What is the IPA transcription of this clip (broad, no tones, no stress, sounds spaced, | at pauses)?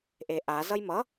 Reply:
ʔ e ʔ a z ʌ j m ʌ